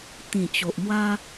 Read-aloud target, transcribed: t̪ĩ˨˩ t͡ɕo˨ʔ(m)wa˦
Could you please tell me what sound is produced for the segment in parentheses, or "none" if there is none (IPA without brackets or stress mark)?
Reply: m